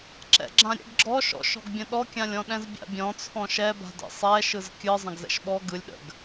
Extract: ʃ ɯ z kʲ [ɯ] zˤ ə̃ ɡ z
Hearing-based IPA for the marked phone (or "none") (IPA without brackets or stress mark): ɯ